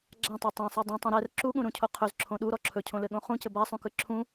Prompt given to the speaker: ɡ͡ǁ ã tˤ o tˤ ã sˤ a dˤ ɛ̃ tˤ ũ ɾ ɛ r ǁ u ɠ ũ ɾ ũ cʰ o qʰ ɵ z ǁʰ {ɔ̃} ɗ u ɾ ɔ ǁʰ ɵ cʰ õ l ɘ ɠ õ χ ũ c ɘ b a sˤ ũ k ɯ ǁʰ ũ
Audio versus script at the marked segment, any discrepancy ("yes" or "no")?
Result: yes